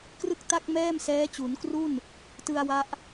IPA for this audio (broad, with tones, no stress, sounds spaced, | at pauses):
k r ɯ˥˩ k̚ t a˥˩ k̚ m ɛː˥˩ m s ɛː˦˥ t͡ɕ u˩˦ n k r u˥˩ n | t ɯ˧ a̯ w a˦˥ ʔ